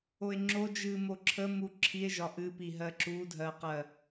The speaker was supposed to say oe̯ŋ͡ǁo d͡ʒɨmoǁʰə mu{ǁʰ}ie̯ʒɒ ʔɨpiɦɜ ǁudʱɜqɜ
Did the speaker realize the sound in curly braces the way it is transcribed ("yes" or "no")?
yes